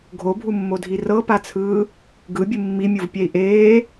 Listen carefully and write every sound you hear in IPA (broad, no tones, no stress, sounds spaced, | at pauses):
ɡʱ o bʱ u mː o dʱ i r ɤ p a t͡sʰ ɯː | ɡ ɯ bʲ ɯ mː i mʲ u v pʲ ɛ i̯ ʔ eː